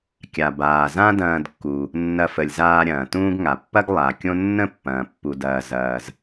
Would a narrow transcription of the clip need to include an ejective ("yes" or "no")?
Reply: no